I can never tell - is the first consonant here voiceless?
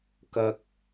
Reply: yes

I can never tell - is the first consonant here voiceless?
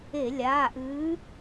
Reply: no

